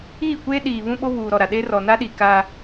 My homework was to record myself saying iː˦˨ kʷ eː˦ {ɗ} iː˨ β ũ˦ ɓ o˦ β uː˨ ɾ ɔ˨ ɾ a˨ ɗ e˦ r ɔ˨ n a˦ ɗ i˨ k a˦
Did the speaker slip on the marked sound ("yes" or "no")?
no